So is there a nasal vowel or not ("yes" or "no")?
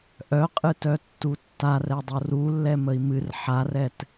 no